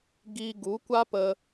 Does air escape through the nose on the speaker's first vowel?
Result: no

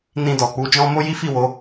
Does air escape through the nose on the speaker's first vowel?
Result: yes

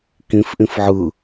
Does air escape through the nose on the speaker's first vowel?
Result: yes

